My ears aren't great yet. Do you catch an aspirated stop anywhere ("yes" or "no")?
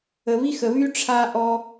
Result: yes